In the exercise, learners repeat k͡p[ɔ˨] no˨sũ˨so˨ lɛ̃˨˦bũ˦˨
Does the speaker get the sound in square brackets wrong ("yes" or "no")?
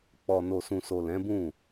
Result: no